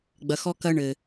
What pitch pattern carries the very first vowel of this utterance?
low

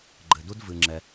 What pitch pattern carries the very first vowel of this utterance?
low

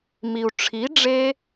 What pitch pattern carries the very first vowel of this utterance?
low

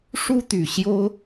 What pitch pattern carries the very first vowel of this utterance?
high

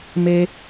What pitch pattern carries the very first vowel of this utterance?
high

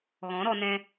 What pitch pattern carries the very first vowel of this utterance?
rising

